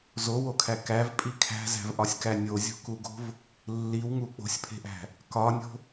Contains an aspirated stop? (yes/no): yes